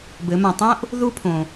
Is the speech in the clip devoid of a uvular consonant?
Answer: yes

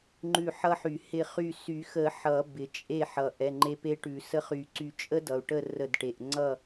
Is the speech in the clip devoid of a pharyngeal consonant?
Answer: no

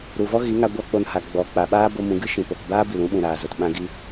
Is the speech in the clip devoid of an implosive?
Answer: no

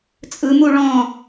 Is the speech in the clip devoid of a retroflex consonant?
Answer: no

